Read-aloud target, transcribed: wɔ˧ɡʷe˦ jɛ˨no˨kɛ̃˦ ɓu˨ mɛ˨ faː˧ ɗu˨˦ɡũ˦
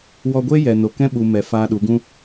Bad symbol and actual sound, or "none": none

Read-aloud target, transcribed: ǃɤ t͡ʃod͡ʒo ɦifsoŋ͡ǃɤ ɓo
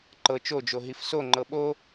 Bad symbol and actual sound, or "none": none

